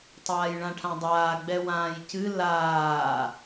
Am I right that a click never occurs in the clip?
yes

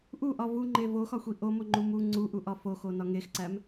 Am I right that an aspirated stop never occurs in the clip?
yes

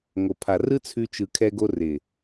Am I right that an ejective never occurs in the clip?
yes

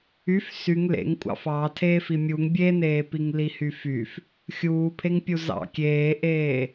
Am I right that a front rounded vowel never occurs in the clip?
no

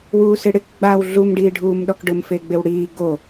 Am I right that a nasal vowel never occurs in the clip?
yes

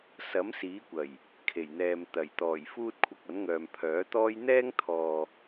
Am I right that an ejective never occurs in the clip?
yes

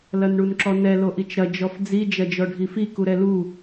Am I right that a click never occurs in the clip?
no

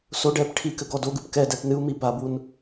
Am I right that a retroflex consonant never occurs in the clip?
no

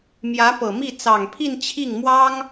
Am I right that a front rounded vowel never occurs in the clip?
yes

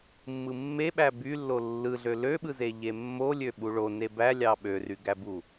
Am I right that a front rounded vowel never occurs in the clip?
no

